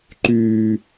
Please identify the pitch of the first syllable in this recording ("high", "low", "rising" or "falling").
low